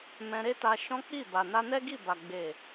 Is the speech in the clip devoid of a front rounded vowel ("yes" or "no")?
yes